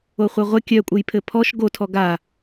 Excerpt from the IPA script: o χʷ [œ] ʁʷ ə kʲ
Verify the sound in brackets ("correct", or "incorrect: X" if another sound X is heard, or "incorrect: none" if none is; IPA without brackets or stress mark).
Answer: correct